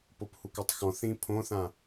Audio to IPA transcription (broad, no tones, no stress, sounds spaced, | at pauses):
p o p h u k o tˤ x ɔ̃ θ ĩ pʰ õ θ ã